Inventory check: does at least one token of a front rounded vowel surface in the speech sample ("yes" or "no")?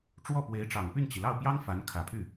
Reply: yes